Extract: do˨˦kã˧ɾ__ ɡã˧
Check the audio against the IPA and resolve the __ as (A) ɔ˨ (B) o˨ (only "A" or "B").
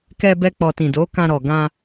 A